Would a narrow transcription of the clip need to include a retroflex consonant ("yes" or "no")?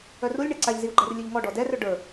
yes